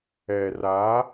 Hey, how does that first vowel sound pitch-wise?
low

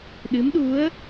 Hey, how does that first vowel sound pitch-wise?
rising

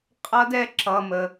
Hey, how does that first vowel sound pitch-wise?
high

